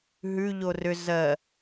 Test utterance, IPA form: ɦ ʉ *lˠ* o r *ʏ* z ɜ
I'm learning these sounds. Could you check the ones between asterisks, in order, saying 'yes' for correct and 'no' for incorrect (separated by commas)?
no, yes